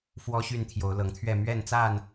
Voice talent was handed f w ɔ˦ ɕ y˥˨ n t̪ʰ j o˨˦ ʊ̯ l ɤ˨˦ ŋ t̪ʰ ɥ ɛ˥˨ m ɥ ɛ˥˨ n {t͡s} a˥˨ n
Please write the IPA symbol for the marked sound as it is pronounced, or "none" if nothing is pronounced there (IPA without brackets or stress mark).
t͡s